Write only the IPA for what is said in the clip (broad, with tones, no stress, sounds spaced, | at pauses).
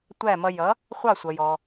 tʷ æ˥˩ m ʌ˧ j ʌ˩˥ | χʷ ɑ˥˩ sʷ ʌ˩ j ɔ˩